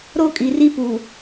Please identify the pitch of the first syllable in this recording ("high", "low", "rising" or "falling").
high